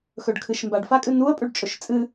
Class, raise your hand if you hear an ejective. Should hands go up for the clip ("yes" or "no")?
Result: yes